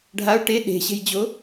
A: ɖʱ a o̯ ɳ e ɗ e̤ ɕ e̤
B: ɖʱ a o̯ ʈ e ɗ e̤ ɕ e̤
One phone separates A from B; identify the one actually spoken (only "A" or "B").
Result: B